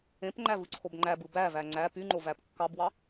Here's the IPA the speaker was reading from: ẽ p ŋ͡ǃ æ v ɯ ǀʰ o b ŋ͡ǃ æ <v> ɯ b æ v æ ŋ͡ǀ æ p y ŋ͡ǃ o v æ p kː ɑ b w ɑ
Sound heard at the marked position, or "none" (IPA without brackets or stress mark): b